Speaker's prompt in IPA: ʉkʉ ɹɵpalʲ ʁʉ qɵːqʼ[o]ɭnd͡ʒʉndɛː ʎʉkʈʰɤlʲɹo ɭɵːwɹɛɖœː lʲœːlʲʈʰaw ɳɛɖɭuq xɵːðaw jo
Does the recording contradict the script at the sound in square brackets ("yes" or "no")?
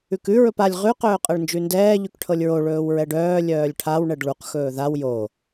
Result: yes